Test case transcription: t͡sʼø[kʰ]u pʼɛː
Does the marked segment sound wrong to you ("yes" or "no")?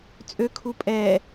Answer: no